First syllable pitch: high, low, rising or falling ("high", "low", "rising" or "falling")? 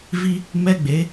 high